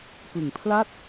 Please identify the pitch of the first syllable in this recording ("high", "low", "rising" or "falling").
low